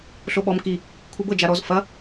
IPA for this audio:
ɬoɓɔm ki | kʷʰibɤ d͡ʒaɾɔz fɐ

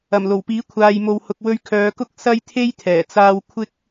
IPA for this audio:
ɐ˨˩mlo˨˩wpiː˨˥ kʷʰaː˨jmo˨whʊ˨k̚ wɵ˧ɥkʰœː˨˧kʊ˥k̚ sɐ˥jt̪ʰe˥jt̪ʰɛː˨˩t͡saː˧w kʷʰɪ˥k̚

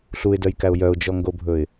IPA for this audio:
ɬuɪ̯dœjkæʊ̯ jœʊ̯d͡ʒɔŋɡobʱɵɪ̯

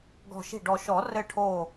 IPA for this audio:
ɡɔ̤˧˩ʃi̤˥˩ɖɔ˧˩ ʃɔ˨˩˦rɘ˧˩ʈʰo˧˩

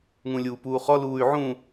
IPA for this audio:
ŋũlʲuːpuːχɔ luːy̯ʕũ

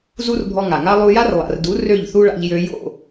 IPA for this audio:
zu˦rbʱɔ˧ŋa˨ŋa˦ lˠu˧ja˦rlˠa̰˨rdu˨˦ rø˦˨ʎθu˦ɭa̰˧ʎ jø˧jo̰˦˨

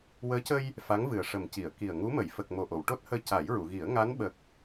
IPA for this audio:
wəː˧˥cə˧j | fa˧˥ŋvɨ˨˩ə̯ ʂə˨˩mci˨˩˨ə̯ ki˨˩ə̯ŋu˧˥ mə˨˩˨jfə˨˩k̚ mo˨˩ʔo˨˩˨wʈo˦˥t̚həː˧ ca˨˩˦jɹu˨˩˨ɣi˨˩˦ə̯ ŋa˧˥nɓə˨˩k̚

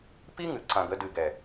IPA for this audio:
pi˦ŋɨ˨ ǀã˨ɡə˧dɨ˨ɡɛ˨

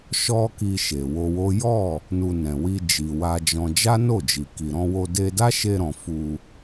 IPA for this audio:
ʃɔ˦ki˧ ʃe˨wo˧wo˦ jɔ˦˨ | nu˧nɛ̃˨ wi˧d͡ʒi˨ wa˧d͡ʒɔ̃˧ d͡ʒa˦no˦˨d͡ʒi˨ ki˨ɾɔ̃˧wo˧ de˧da˦ʃe˧ɾɔ̃˨ fu˧

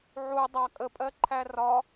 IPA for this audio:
ʕu dˤɑ kʼəpʼɜǃʰæ rɒ

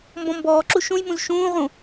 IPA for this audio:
mbɔ̃mbɔːǁu ʃũjmũz ʃũːʁũ

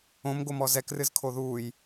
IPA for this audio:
õmɡo mɔzɛkrɨzkʰo ðuːj

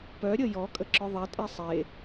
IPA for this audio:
pœ ɾʲəjɔ kʼəǁœðˤɛ tʼesˤe

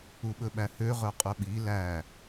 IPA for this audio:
uɓɵɓæhø ʁœqʼɵɓi læ

